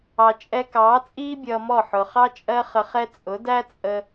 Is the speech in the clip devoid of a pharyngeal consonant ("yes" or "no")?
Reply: no